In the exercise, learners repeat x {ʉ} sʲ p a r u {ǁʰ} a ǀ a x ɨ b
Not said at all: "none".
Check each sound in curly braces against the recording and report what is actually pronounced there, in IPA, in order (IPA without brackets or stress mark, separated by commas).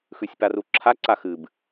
ʉ, ǁʰ